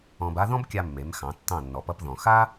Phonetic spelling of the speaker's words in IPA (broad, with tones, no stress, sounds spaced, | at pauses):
ɔ̃˧ b a˥ ð ɔ̃˥ b kʲ a˧ mː e˩˥ m x ɑ̃˩˥ tː ɑ̃˥˩ nː ɔ˩ p ʌ˧ p ð ɔ̃˩ x a˥